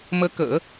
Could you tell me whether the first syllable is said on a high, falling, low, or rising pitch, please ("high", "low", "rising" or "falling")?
rising